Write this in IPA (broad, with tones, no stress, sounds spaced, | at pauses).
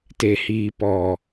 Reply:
t e˨ h iː˨ p ɔ˨